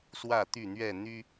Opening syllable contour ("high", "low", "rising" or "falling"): falling